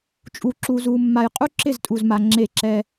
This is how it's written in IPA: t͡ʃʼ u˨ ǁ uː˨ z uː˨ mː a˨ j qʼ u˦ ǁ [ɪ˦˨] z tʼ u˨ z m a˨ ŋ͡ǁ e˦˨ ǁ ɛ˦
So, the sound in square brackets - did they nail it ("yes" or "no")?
yes